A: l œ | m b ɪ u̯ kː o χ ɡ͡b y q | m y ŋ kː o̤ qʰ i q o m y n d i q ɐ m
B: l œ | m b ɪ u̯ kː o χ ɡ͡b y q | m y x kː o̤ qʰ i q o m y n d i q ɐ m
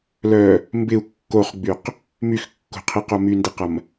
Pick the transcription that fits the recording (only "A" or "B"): B